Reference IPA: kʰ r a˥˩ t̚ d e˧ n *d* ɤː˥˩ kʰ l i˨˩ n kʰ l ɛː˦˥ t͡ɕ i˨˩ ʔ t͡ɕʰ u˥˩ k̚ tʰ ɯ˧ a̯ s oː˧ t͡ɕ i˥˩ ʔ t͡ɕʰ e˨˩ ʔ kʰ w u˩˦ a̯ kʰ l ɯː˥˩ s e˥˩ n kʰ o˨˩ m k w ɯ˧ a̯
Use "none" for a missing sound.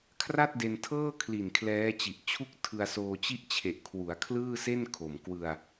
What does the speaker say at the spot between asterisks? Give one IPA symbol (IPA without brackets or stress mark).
tʰ